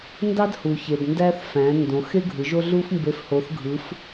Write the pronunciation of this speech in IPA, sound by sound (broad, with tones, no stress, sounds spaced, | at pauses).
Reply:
n d ɑ˥ d h u˩ ç e˩ d n d æ˥ θ f æ̃˩˧ n d õ˩˧ x e˥ ɡʱ ɯ˩˧ ʒ o˥ ɮ u˥ f m b e˧˥ f h o˧˥ θ ɡʱ ɯ˧˥ f